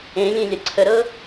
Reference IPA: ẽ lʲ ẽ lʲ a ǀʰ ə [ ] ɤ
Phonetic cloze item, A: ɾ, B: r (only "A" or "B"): A